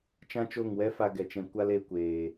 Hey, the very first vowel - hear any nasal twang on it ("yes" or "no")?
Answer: yes